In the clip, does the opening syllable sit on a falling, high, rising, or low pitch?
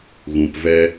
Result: low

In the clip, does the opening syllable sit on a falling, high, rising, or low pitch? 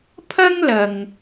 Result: high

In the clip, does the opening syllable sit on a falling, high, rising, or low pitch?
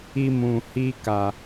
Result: high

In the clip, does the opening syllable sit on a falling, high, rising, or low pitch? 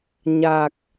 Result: low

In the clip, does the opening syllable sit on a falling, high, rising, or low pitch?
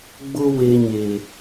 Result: high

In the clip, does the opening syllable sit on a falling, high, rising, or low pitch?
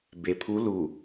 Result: low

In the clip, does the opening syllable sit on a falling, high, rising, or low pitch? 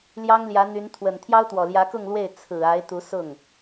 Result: high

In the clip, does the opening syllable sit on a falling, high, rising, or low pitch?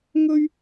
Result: high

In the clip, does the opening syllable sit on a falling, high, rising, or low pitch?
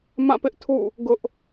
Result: falling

